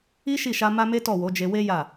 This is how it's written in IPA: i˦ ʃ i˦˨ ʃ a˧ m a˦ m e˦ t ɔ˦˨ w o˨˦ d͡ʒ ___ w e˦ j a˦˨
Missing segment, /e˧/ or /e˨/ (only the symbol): e˧